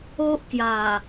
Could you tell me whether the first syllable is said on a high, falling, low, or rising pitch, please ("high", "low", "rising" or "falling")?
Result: high